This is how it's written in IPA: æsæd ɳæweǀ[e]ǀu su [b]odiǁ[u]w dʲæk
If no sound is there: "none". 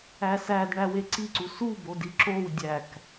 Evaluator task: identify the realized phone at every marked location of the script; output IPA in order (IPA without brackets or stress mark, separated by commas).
i, b, o